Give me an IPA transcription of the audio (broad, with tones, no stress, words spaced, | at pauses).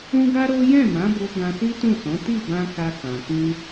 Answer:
ũ˦ɡa˦ ɾo˦ jɛ̃˦˨mã˨˦bo˧ ɡã˧si˦tũ˦˨sɔ̃˨˦ ti˦˨bã˧ ka˧kã˨ kĩ˧